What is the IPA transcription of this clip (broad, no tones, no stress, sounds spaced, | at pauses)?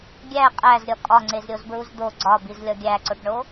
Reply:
ɡʲ æ qʼ æ z ɾʲ ɒ kʼ ɒ ŋ͡ǀ e z ɾʲ o z b ɹ u z d̪ o ɡ͡ǀ ɒ b i z lʲ ɒ ɡʲ æ ǀ o ʈ ɳ o